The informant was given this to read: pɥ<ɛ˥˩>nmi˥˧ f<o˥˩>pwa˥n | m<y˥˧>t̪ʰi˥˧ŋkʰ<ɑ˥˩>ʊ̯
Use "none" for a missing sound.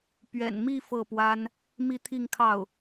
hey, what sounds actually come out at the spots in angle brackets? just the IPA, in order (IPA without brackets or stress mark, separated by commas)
ɛ̰˨˩, ɤ˥˩, i˥˧, ɑ˥˩